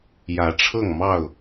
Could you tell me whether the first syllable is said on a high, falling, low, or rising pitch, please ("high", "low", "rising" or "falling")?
rising